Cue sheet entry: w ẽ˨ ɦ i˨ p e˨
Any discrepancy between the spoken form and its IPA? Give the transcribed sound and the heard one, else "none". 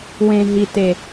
p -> t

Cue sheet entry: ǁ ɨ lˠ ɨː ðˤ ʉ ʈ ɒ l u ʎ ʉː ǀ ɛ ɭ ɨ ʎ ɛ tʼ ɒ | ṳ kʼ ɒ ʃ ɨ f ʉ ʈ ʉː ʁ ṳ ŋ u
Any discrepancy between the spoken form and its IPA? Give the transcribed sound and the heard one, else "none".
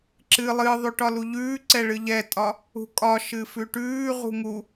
none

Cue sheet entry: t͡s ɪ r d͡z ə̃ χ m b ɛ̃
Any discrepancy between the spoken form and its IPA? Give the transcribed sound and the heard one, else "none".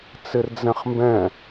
ə̃ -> ɛ̃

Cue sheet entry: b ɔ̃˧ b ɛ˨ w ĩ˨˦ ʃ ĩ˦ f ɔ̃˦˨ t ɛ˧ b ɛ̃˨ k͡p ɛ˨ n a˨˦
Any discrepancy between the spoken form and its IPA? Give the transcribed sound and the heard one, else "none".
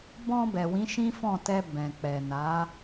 none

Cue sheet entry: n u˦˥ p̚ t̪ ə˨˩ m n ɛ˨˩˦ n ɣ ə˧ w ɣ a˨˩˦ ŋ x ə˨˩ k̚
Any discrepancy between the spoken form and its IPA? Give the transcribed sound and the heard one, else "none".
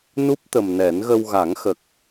none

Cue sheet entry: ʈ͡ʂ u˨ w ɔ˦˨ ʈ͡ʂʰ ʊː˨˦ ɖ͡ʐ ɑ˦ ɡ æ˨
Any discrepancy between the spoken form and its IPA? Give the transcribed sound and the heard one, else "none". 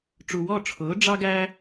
æ˨ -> æ˦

